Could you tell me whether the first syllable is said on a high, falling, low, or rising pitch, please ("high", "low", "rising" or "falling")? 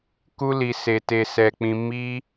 high